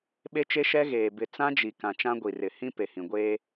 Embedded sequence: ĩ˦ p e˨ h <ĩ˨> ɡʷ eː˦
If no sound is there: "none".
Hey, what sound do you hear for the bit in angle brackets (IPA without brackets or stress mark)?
ĩ˨